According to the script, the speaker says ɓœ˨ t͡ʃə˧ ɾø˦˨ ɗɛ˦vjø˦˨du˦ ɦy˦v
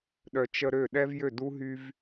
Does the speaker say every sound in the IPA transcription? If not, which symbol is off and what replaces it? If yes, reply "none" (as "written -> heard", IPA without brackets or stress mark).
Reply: ɓ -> ɗ